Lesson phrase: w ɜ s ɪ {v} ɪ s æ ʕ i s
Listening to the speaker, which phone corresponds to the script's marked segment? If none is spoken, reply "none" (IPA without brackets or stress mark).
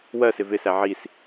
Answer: v